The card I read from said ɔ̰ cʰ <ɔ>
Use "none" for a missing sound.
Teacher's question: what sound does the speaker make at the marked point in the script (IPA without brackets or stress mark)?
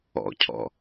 ɔ̰